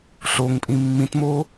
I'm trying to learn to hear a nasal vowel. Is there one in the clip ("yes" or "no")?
yes